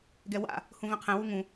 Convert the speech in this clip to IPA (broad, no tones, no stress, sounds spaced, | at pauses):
ɡ ɛ w a̰ | h ũ v ɛ̃ qʰ ɛ̃ w u ŋ ũ